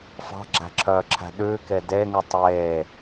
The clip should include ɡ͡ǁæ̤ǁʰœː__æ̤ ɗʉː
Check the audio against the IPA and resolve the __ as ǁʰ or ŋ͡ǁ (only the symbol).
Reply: ǁʰ